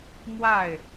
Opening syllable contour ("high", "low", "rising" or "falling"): falling